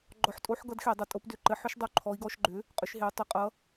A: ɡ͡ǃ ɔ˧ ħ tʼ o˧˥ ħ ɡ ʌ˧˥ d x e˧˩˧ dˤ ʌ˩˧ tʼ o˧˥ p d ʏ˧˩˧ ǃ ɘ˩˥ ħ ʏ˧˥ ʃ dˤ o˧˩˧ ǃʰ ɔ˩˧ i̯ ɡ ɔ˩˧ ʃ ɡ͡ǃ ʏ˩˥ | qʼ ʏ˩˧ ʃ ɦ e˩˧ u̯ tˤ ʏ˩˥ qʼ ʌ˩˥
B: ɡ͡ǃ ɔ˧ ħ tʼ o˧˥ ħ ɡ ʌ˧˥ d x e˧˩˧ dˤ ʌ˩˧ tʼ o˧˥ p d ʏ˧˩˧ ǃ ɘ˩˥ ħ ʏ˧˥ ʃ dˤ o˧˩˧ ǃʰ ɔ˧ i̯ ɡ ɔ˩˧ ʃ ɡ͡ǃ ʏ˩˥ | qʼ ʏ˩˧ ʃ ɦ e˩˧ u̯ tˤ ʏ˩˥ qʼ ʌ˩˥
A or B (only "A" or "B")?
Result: A